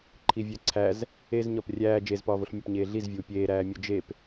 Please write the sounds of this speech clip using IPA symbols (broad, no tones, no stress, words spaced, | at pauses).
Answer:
ǃʰivʲæǀʰæz | ez ɲɒprʲæː d͡ʒezpɒːvoɬmʲɒp ɲeːɮizvʲuː pʲeːɾæːmʲo d͡ʒep